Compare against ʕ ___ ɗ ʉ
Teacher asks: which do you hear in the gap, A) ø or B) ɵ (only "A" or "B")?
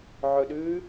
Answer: B